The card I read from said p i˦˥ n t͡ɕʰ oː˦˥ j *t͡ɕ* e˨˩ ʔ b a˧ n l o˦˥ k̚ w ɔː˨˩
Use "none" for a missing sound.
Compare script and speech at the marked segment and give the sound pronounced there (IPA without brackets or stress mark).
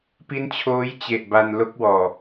t͡ɕ